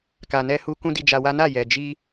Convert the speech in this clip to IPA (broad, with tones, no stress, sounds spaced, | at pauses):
k a˨ n ɛ˧ h u˧ k ũ˦ d i˧ d͡ʒ a˧ w a˦ n a˦˨ j ɛ˨ d͡ʒ i˧